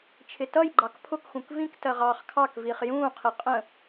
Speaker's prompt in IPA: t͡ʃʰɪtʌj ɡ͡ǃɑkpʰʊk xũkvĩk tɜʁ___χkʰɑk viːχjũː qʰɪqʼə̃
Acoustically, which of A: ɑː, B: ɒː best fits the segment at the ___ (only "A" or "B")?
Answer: A